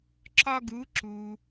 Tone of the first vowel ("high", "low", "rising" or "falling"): high